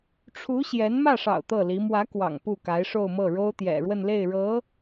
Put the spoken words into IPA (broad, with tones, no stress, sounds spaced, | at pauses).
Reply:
ʈ͡ʂʰ u˧˥ ɕ j ɛ˧˥ n m ä˥˩ ʂ ɑ̰˨˩ ʊ̯ t̪ ɤ˥˩ l i˧˥ m w ä˧˥ k w ɑ̰˨˩ ŋ p u˥˩ k a˧˥ ɪ̯ ʂ o˥˧ ʊ̯ m ɤ˥˩ ɻ o˥ ʊ̯ t̪ j ɛ̰˨˩ ɻ w ə˥˧ n l e˥˩ ɪ̯ ɻ ɤ˧˥